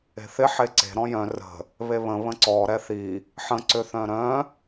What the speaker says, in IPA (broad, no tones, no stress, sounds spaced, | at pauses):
e̤ θ ɪ ħ e ǀ e̤ ɾ ɔ̃ j œ̃ r ə̤ | β e β ə̃ β ə̃ ǀ ɔ ɾ ɛ θ i | ħ ə̃ ǀ ʏ θ œ̃ ɾ œ̃